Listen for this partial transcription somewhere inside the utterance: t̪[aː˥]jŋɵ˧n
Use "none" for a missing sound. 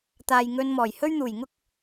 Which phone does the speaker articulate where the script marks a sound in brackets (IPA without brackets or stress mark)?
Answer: aː˨